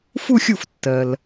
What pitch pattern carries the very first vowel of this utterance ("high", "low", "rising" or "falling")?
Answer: falling